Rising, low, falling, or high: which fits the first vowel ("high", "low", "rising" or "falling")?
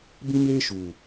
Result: high